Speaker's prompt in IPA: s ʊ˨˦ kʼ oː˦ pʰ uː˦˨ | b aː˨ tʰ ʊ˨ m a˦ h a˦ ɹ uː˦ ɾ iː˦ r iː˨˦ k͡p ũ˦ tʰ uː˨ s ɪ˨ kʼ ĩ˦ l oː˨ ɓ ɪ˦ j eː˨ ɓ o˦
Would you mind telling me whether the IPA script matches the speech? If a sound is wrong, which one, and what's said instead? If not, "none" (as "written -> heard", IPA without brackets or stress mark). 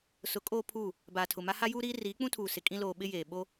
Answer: ɹ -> j